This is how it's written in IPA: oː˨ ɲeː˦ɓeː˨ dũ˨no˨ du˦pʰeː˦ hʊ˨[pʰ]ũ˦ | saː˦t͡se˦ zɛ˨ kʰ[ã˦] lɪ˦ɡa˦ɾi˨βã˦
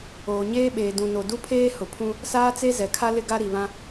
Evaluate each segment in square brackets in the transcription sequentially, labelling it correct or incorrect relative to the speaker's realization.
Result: correct, incorrect

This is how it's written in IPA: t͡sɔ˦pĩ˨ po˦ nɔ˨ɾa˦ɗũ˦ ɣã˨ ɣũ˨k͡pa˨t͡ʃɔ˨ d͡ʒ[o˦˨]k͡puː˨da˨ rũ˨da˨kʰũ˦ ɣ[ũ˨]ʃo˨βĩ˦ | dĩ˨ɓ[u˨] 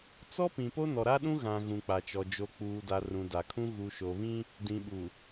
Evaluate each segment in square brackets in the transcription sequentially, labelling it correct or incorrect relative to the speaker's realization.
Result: incorrect, incorrect, correct

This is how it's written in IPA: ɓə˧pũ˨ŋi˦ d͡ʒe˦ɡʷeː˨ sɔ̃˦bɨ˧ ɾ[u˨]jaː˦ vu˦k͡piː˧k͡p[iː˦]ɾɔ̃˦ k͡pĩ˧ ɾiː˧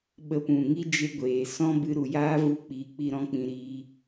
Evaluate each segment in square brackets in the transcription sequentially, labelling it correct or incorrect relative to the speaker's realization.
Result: correct, incorrect

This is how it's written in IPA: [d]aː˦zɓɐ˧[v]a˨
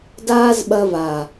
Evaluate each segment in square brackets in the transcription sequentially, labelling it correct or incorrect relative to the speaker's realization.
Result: correct, correct

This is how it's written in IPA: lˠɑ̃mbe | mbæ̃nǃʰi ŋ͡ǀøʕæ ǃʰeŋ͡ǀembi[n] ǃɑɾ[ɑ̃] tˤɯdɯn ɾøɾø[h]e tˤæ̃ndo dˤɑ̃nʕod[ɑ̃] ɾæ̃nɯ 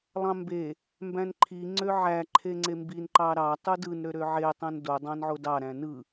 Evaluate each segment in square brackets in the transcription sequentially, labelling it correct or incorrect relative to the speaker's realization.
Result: correct, incorrect, incorrect, incorrect

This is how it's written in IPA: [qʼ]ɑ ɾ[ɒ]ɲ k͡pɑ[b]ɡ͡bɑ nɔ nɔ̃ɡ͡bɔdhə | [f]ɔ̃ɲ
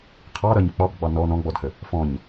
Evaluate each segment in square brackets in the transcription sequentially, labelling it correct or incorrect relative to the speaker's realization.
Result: incorrect, incorrect, correct, correct

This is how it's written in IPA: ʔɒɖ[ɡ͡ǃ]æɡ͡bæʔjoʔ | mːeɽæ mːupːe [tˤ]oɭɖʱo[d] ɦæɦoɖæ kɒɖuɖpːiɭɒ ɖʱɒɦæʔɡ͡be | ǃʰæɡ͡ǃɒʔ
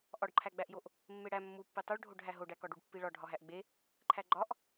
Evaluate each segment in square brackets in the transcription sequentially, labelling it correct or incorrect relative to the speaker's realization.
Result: incorrect, correct, incorrect

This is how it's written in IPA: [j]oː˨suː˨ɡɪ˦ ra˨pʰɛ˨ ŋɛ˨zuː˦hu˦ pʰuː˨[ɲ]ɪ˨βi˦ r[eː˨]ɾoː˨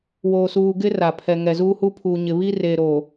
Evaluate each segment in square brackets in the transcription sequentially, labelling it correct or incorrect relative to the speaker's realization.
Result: incorrect, correct, correct

